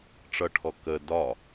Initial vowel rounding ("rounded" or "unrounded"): unrounded